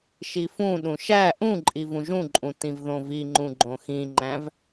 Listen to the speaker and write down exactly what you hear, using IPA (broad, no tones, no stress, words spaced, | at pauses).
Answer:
ʃifũɗũ ʃæ ʔũǃʼiv ũʒũǃʼũ tĩvðõviŋ͡ǃũ ɡ͡ǃõxĩŋ͡ǃæ̃v